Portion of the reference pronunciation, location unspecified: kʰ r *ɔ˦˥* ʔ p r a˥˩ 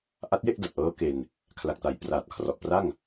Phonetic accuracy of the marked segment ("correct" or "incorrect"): incorrect